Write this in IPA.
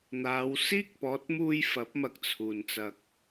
n̪ aː˨˧ w s iː˥ k̚ p ɔː˨˥ t̚ m uː˧ j f ɐ˨˥ p̚ m ɐ˧ k̚ t͡sʰ uː˨˩ n t͡s ɐ˨ k̚

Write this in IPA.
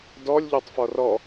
d ɔ lʲ ʎ ɔ tˤ f ɔ r ɔ

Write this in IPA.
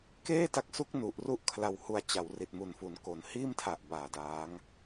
k eː˥˩ t a˦˥ k̚ s u˦˥ k̚ n u˨˩ ʔ r u˥˩ ʔ kʰ l a˧ w h u˧ a̯ t͡ɕ a˩˦ w r i˨˩ t̚ m u˨˩ n f u˩˦ n k o˨˩ n h iː˥˩ m tʰ a˨˩ ʔ b aː˨˩ d aː˦˥ ŋ

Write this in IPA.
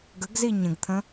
ɡ ə ɡ z i ɲ ə̃ ɡ t̪ʰ ə̃

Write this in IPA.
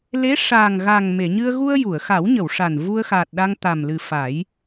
l e˧˥ ʂ aː˨˩ ŋ ɣ a˨˩ ŋ m e˨˩˨ ɲ ɨ˧ ə̯ ɣ u˧ ə̯ j u˨˩˨ ə̯ x a˨˩˦ w ɲ ə˨˩˨ w ʂ a˨˩ n v u˧ ə̯ x aː˨˩ t̚ ɗ a˧ ŋ t̪ a˨˩ m l ɨ˨˩ f a˨˩˦ j

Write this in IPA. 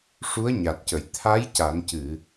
ʂ u˧˥ ə̯ ɲ a˨˩ t̚ c ə˨˩˨ j t̪ʰ a˧˥ j c a˨˩˦ n c ɨ˨˩˨

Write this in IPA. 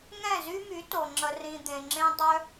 ŋ ɛ̃˦˨ z y˦ m y˨˦ t o˨ ŋ͡ǁ ə˧ r ĩ˧ d̪ ẽ˧ ŋ͡ǁ ẽ˦ dˤ œ˦

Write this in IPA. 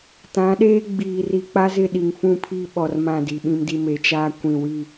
t ã˨˦ ɗ eː˦ ɡ͡b iː˨ r i˨ k͡p a˦ z ɪ˦˨ ɗ i˨ ŋ f ũ˦˨ pʰ iː˦ ɓ ɔ˨ r m ã˦˨ d i˨ ɓ ĩ˦ m d i˦ m e˨ t͡ʃ aː˦ kʷ ĩ˨ w i˦˨

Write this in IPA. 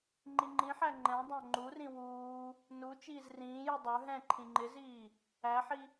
ŋ͡ǃ i ŋ͡ǃ ĩ ħ æ ŋ͡ǃ ɛ̃ dˤ æ̃ ŋ͡ǃ u r ĩ w uː | n u t͡ʃ iː z r ĩː j u dˤ ə˞ ɦ ɛ̃ ǃʰ ĩ ŋ͡ǃ ɪ z iː | æ ħ i

